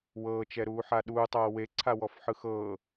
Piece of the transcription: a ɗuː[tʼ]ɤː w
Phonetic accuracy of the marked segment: incorrect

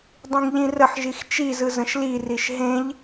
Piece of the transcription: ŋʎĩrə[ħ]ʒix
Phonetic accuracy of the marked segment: correct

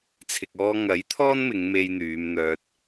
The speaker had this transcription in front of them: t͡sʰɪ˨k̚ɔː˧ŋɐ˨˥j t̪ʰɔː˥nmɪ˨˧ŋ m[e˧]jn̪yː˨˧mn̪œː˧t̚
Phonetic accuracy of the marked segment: correct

